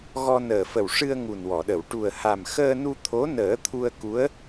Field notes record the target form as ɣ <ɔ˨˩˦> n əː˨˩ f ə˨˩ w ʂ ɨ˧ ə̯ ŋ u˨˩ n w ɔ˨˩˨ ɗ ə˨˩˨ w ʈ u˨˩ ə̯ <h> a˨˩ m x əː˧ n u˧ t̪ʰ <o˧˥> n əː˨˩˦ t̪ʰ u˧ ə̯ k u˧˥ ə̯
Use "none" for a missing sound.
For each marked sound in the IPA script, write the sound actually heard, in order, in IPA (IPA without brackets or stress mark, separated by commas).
ɔ˧, h, o˧˥